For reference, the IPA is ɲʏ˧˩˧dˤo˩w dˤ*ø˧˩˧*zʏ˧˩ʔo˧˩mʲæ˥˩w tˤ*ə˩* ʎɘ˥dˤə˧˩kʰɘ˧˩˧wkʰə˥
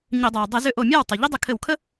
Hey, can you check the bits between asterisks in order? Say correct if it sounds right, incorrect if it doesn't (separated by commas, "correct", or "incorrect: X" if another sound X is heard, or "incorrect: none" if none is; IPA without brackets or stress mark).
incorrect: ɘ˧˩˧, incorrect: ʏ˩